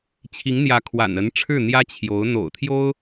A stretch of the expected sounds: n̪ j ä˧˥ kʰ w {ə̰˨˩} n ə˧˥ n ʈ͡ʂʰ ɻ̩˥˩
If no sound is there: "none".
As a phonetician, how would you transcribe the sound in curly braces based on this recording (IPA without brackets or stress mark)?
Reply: a̰˨˩